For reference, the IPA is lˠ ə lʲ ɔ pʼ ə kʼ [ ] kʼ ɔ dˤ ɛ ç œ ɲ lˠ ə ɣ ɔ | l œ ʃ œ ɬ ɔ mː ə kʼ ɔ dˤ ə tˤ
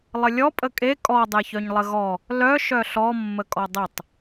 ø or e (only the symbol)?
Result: e